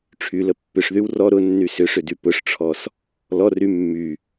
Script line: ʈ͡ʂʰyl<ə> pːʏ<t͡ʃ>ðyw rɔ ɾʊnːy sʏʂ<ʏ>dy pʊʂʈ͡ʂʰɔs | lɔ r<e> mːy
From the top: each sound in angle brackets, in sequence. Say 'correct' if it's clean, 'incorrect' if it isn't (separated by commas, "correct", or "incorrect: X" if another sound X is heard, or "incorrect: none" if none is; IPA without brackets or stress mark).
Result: correct, incorrect: ʂ, correct, incorrect: y